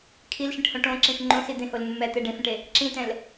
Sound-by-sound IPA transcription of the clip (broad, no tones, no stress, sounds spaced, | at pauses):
kʰ i l ʃ ĩ ʈ h õ ʈ õ ǁ ĩ f ŋ͡ǃ õ s i d̪ ẽ h o l mː ɛ t̪ e ɖ ẽ f ẽ ʈ e | ǁ ĩ t ɛ̃ l